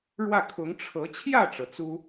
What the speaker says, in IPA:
ɻwä˥˩kʰʊ˧˥ŋ ʈ͡ʂʰɤ˧˥ t͡ɕʰjä˥˩ʈ͡ʂɤ˩ t͡su˥

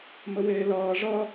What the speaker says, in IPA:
məweːlʌː ʐʌ

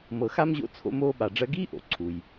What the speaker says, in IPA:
mɤ˨xa˥mʑo̰˦ t͡sʰo̰˥moː˥ɓa˨ɖ͡ʐɜ˥ ɡiː˥ʔo̰˩ ǀʰu˩j

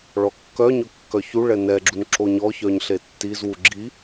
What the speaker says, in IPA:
ɭɔkːœɲɵ kːœçuɭɛ nɛɡ͡ǁun ǁoɲɔçœɲ ɬetːizwu ɡ͡ǁi

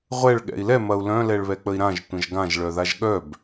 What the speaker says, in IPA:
ʁʷɛɭ ɠɛ̰i̯lɛ mɐu̯lœ̃ lɛɭβɛk͡pəi̯ɾãʒ tʷə̃ʒɡãʒ ɭœðaʒɠœb

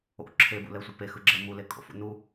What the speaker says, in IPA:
o̰ ǁʰebṵlɛsʷɯ pexɯɡ͡ǁɛ mulekʼo̰fṵ nu

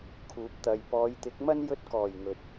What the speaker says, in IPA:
kʰuː˨˥p̚t̪ɐ˧j pɔː˨˧jt̪ɪ˨˥k̚mɐ˥n jɵ˧t̚kɔː˨˩j ŋɵ˨t̚

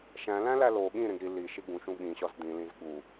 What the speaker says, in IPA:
ʃæ̃læ̃læ lo ɠĩɾẽɡ ɾi liʃi ɡũʃũ ɠĩɕɒz d̪ĩlĩz ɠu

